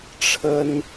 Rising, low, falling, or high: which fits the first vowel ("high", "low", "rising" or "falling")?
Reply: high